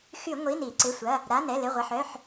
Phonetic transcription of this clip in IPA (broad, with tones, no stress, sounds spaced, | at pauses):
x y˧˩˧ ŋʷ i˩˧˩ n i˧˩˧ ǀ ɪ˩˧˩ sʷ ɐ˩˧˩ | ɾ a˩˧˩ n ɛ˩˧˩ l ɪ˩˧˩ ʁʷ ɐ˩˧˩ ħ œ˩˧˩ ħ